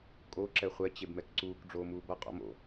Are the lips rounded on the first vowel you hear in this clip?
yes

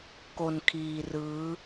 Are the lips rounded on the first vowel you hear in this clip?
yes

